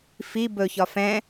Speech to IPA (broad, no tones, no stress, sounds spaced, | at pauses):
f i b ɵ ç ɒ f ɛ̃